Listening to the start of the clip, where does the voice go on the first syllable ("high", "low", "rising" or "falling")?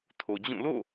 low